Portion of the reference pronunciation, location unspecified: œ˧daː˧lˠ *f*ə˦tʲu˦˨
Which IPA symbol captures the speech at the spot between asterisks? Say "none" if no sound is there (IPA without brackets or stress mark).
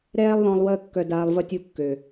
v